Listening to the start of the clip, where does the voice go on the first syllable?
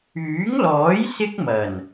rising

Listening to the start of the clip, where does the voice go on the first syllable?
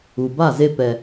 low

